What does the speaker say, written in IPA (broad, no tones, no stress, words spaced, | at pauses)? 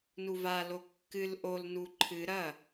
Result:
nuvalo kːɨl ʔolnu ǃʰɨ ɾɐ